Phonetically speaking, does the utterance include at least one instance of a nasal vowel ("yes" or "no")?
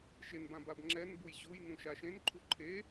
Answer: yes